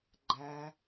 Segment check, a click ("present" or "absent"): present